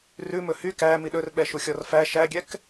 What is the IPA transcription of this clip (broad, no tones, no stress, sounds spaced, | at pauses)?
r ʉ m ɵ h y k æ m i ɗ ɵ r ɓ ɛ ʃ u xʲ ɔ r f æ ʃ æ ɡʲ ɛ k